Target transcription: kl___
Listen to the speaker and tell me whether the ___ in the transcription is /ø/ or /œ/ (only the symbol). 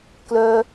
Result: œ